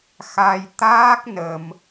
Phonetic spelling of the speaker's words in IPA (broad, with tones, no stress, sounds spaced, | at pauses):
x a˧ j t̪ aː˦˥ k̚ n ə˧ m